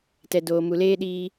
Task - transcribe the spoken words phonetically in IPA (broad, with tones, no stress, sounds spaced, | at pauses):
t ɛ˨ d oː˨ m u˨ l eː˦ ɗ iː˦